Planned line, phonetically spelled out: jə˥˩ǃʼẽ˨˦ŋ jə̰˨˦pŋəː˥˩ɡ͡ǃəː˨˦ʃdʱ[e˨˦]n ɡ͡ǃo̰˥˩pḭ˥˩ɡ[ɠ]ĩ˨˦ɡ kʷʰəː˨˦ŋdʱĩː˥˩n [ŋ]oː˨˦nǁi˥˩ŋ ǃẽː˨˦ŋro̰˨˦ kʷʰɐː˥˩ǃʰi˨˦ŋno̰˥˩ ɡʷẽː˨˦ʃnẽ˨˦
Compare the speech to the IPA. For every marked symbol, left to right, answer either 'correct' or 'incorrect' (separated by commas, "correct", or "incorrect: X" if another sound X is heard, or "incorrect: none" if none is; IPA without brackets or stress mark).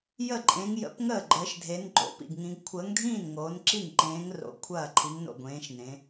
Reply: correct, incorrect: ŋ, correct